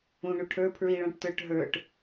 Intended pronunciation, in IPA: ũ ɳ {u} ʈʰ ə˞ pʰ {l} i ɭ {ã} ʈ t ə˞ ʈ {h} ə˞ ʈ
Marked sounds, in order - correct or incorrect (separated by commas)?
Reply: correct, incorrect, incorrect, incorrect